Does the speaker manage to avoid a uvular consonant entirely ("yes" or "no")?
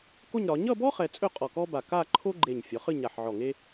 no